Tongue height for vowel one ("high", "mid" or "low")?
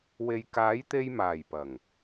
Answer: mid